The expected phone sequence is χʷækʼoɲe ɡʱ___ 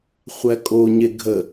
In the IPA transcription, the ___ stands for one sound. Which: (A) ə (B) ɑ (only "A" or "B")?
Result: A